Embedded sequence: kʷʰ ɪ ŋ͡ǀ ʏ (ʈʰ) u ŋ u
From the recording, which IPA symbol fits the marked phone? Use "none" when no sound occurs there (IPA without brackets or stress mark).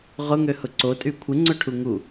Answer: ʈʰ